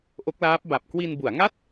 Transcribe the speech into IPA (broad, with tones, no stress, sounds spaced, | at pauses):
ʔ o˦˥ k̚ l aː˦˥ p̚ b a˨˩ p̚ k w i˧ n b u˩˦ a̯ ŋ a˥˩ t̚